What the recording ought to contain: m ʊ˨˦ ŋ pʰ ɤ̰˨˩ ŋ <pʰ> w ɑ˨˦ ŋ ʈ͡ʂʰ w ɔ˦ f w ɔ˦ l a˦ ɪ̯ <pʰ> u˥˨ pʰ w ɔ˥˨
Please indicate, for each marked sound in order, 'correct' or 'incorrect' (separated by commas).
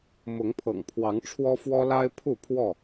correct, correct